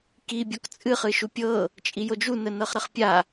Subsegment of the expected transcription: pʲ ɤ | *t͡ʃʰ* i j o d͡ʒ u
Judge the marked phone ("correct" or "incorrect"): incorrect